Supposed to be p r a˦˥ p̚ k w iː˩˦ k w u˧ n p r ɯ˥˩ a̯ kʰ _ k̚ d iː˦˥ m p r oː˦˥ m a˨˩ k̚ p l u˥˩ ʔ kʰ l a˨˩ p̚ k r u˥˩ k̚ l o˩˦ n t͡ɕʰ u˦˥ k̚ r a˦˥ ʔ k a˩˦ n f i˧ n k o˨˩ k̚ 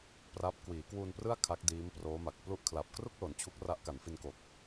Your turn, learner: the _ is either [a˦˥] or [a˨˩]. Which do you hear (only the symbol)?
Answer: a˦˥